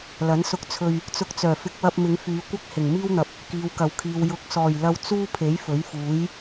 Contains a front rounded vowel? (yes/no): yes